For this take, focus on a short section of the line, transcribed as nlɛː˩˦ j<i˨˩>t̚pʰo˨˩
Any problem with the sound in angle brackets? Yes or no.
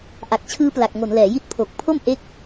yes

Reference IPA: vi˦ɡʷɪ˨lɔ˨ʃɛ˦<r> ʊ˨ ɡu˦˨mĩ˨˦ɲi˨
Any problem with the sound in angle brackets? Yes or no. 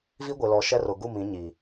no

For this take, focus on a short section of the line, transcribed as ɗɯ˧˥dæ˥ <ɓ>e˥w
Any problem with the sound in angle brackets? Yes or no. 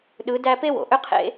yes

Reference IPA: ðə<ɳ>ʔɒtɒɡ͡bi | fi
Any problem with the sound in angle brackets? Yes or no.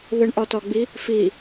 no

